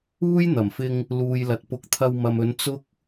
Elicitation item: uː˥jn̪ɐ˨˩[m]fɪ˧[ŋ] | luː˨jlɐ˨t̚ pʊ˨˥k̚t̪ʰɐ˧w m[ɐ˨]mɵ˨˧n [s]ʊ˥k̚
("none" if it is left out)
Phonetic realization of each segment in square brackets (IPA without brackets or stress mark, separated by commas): m, ŋ, ɐ˨, t͡s